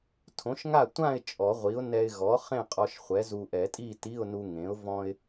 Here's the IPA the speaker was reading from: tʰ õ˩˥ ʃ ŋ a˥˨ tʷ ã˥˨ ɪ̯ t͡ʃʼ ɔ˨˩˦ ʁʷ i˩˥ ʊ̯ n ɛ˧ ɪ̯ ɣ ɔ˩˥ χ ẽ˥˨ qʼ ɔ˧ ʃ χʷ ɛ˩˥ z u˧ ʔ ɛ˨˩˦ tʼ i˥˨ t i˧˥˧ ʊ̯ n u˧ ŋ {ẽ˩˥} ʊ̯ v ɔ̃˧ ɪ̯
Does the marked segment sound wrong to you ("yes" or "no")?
no